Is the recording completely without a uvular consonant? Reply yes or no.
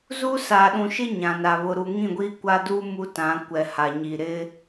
yes